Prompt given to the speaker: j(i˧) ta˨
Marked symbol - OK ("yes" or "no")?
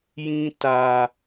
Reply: no